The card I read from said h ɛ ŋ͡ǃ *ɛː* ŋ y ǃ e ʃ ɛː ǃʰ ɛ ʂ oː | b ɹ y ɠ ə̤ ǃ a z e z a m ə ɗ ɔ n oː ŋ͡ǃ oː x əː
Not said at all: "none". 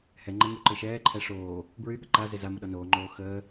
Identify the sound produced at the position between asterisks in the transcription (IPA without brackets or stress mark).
ɛ